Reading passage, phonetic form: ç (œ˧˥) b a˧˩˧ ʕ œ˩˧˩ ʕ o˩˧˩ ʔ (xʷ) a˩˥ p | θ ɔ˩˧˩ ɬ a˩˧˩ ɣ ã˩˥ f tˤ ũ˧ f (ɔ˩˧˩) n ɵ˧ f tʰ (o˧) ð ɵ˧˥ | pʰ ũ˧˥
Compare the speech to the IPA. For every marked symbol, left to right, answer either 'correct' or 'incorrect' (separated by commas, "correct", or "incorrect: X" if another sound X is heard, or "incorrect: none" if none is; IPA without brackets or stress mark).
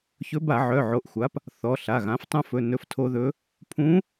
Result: incorrect: ɵ˧˥, correct, incorrect: ɵ˩˧˩, correct